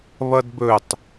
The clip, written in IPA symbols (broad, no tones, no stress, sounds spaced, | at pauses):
β ʌ d b ɵ tˤ